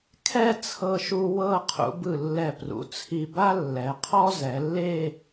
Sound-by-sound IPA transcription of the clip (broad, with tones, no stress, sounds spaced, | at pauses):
kʰ ɛ˥˧ t͡sʰ ɤ˧ ʃ u˧ w ɤ˥˧ qʰ ṵ˩˧ b ɯ˧˩ lː ɛ˧˩ p r ṵ˩˧ t͡sʰ i˧ b a˥ lː ɛ˩˧ qʰ ɔ˥ z ɛ˩˧ lː e˥˧